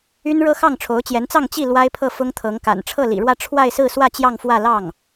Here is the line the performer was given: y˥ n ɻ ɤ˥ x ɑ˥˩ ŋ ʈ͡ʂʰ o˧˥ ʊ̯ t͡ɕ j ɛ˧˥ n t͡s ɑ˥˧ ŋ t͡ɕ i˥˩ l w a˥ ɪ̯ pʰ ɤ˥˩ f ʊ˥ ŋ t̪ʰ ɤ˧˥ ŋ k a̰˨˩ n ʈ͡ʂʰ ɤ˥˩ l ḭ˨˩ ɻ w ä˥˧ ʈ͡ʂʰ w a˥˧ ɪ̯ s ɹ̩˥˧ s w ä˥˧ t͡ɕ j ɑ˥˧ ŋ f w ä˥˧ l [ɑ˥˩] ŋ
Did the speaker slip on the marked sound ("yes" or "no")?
no